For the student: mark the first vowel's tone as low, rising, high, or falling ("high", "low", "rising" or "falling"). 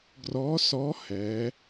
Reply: rising